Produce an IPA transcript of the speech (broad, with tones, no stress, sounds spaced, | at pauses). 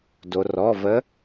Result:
d o˩ r ɔ˩˧˩ v ə˧˥